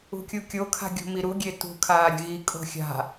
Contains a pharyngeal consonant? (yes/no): no